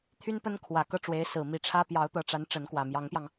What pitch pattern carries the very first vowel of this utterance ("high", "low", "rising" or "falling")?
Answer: high